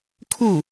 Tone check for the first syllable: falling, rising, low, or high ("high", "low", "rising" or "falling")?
falling